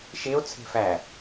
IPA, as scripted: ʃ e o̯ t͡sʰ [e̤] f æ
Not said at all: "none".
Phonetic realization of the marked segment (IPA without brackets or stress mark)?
e̤